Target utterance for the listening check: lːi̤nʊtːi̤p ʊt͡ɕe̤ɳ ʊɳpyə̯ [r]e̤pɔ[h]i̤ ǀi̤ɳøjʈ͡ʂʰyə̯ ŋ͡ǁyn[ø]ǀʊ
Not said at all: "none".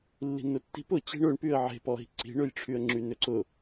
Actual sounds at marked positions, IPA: ʕ, ɦ, ø

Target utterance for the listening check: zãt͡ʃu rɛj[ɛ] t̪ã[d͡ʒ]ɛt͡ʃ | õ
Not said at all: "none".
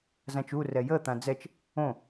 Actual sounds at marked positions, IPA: ə, d͡z

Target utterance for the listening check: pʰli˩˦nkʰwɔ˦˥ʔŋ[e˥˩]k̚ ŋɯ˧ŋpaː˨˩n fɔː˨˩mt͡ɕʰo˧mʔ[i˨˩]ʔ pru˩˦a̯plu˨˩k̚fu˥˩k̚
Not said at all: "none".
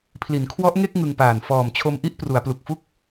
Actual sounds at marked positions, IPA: e˥˩, i˥˩

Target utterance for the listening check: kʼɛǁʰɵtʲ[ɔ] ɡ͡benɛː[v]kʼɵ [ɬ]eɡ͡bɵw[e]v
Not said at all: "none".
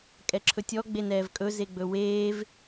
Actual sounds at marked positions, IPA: ɔ, v, z, eː

